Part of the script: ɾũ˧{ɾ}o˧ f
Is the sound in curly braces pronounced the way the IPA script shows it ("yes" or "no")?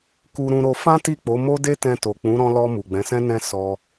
yes